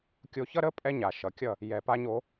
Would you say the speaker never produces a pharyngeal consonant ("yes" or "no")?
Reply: yes